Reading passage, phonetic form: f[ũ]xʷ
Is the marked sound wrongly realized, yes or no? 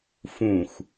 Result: no